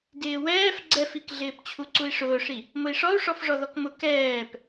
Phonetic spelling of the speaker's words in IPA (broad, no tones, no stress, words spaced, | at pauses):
dɪːwɛːf ɡ͡ǀɛfikɮɪːp t͡ɕʰuǀui̯ʂʊːʂi | mʊi̯ʂɔu̯ ʂɔfʐɔðɔkmʊ kɛːp